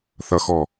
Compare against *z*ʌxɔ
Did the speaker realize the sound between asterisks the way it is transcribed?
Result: no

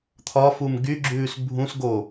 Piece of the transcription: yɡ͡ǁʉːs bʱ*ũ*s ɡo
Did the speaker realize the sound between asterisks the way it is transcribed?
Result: yes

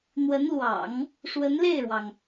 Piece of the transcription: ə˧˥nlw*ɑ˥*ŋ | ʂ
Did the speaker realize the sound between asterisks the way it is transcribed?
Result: no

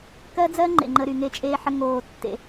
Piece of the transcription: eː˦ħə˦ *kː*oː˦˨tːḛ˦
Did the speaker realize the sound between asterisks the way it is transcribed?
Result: no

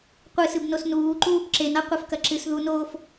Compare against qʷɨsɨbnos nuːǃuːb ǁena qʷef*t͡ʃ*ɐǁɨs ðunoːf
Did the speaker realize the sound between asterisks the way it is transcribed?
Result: no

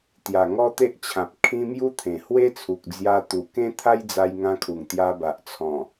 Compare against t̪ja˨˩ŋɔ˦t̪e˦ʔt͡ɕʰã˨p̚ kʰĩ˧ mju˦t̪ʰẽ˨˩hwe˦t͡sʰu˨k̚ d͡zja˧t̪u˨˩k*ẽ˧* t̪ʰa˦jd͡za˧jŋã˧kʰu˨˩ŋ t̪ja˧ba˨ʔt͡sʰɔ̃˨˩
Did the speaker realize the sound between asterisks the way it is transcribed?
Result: no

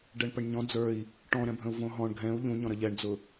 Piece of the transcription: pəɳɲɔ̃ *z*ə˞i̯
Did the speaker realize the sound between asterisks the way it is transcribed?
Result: no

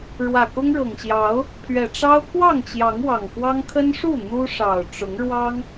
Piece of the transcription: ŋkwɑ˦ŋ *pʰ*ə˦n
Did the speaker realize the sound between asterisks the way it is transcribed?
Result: no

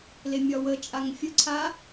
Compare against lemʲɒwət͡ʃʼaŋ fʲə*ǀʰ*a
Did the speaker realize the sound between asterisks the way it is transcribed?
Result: yes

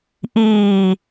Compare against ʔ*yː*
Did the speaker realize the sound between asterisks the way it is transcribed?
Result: no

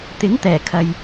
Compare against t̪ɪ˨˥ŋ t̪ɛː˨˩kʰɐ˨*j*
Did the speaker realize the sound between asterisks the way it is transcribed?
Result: yes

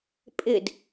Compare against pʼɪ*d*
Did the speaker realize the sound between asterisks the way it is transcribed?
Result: yes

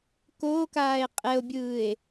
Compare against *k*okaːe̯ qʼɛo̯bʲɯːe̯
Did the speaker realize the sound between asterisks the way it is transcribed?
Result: yes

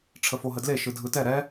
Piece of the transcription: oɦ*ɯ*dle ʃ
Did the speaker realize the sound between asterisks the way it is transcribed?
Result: no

